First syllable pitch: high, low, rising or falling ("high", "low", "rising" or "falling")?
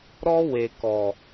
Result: high